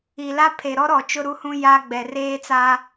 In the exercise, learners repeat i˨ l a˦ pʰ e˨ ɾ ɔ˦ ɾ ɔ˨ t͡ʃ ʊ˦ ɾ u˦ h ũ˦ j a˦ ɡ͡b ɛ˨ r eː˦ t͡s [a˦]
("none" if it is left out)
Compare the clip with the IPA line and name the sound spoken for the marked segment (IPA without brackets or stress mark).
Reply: a˦